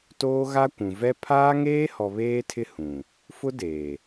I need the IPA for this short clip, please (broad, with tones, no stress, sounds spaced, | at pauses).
t oː˦ ɣ a˦ kʷ ũ˨ v ɛ˦ pʰ aː˦ ŋ eː˦ h ɔ˨ β eː˦ tʰ ɪ˦ h ũ˨ | f ʊ˦ d eː˨